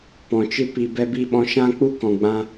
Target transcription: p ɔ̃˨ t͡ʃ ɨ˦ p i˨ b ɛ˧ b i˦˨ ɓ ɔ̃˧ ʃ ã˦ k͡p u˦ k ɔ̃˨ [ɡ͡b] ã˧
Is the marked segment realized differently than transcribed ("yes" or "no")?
no